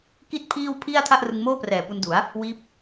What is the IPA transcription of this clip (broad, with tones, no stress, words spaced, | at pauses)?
ki˥˩t̚pʰiː˥˩wpʰi˥˩a̯ tʰa˥˩ʔrɯ˧ŋmoː˥˩prɛː˨˩ pu˧ndu˩˦a̯ | wiː˦˥p̚